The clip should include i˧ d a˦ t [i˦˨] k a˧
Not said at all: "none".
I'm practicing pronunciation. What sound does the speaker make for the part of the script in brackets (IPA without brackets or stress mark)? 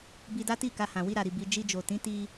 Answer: i˦˨